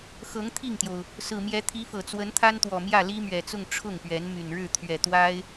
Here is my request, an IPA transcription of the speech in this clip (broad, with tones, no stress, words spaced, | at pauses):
xɤ˧˥ŋt̪ʰi˥˩ŋt̪jo˩ʊ̯ | sɹ̩˨˩mjɛ˧˥t̪ʰi˧˥fɤ˨˩ t͡swə˧˥nt̪ʰa˥nt̪wɔ˨˩ mjä˥˩li˥mɥɛ˨˩t͡sʊ˥˧ŋ ʈ͡ʂʰʊ˥˩ŋpɥɛ˧˥n my˨˩nɻɻ̩˥˩ t̪ʰɥɛ˨˩t̪wa˥ɪ̯